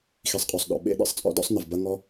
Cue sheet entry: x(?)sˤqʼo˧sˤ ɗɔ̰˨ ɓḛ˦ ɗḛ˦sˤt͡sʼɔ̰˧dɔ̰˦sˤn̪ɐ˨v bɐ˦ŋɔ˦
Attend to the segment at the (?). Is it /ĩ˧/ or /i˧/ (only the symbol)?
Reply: i˧